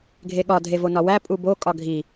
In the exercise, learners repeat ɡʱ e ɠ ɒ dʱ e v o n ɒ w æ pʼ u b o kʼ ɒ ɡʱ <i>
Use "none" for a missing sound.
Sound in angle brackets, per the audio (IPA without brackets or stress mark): i